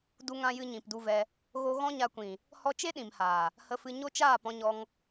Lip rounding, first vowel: rounded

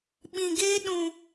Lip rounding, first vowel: unrounded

